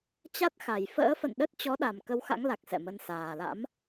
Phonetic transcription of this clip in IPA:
t͡ɕa˦˥t̚xa˨˩j fə̰ː˧˥fə̰˧˨n ɗə˦˥t̚ t͡ɕɔ˨˦ɗa˨˩m kə˧wxa̰˧˥ŋla˨˩k̚ sɛ̰˧˨mə˧n saː˨˩la̰˧˥m

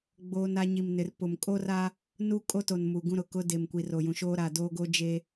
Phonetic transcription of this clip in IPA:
ɡ͡boː˦na˦ ɲi˨mnɪ˨rpʊ˨m kʼo˦ra˦ | nu˦kʼo˦to˨n mu˨ɡũ˦ɾʊ˨ kʊ˦de˨m kʷi˨ro˨jũ˨ʃoː˦ ɾa˨doː˦ɡo˦d͡ʒe˦

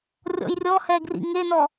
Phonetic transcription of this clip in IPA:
rʲɔ̰jrʲɔhɛ ɡrḭŋenɔ

